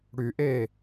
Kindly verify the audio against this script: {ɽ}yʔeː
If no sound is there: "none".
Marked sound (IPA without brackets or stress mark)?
ɽ